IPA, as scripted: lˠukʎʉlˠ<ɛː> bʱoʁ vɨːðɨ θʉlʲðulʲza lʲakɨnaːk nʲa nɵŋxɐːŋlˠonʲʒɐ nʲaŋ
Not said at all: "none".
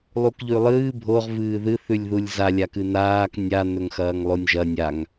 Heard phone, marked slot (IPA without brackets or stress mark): ɨː